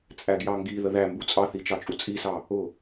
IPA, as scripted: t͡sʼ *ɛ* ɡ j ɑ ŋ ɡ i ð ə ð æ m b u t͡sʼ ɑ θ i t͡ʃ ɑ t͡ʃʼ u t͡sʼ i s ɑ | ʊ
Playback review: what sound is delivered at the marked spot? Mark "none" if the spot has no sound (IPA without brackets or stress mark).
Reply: æ